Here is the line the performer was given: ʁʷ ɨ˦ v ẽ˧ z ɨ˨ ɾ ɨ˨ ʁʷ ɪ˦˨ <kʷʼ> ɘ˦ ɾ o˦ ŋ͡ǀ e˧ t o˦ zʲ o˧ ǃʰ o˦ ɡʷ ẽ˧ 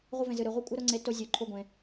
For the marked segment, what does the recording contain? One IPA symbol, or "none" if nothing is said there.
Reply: kʷʼ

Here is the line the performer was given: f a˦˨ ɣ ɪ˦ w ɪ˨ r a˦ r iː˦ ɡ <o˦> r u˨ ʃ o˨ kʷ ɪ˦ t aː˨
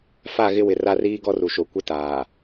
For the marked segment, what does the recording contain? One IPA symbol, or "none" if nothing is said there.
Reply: ɔ˦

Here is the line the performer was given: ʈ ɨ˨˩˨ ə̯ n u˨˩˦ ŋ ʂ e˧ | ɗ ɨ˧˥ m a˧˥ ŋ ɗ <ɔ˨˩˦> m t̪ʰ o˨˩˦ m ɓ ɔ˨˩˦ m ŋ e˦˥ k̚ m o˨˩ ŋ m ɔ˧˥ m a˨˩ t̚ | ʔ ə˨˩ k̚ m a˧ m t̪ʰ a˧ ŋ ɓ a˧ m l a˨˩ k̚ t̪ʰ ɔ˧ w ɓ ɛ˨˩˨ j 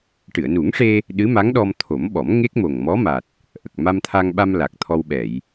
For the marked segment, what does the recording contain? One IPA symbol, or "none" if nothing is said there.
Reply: ɔ˧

